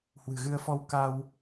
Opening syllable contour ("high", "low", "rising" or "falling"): low